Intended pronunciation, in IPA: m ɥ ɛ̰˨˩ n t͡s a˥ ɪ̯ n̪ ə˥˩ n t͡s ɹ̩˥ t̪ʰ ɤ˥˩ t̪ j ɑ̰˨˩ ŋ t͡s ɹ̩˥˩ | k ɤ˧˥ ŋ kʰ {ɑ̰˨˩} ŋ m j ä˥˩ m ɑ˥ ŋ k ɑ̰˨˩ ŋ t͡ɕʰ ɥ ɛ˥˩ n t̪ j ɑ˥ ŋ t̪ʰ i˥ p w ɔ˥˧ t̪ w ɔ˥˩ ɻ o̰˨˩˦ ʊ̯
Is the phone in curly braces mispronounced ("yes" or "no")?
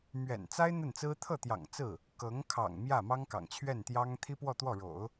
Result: no